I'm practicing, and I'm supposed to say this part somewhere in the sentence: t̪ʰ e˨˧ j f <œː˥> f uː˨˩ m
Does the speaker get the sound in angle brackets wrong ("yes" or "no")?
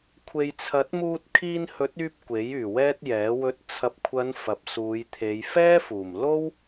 yes